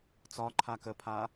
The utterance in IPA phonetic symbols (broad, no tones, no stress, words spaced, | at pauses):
t͡sɒǃʰa kəpʰa